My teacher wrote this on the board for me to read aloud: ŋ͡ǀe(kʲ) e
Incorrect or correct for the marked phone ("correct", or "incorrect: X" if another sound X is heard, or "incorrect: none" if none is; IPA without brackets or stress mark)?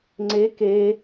incorrect: k